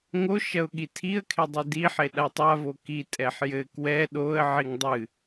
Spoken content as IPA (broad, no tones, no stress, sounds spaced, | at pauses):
ŋ o ʃ ɐ ʊ̯ ɠ i tʰ i ə̯ kʰ e dˤ ɨ d i ħ e ɗ a tˤ a v o k i tʼ ɛ ħ j ɘ k w ɛ ɗ o ə̯ ʕ i ŋ dˤ ɨ